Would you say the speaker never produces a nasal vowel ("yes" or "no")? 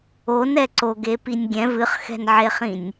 no